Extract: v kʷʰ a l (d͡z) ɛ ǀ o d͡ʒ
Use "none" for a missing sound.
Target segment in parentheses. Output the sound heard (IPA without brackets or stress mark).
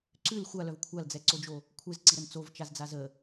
d͡z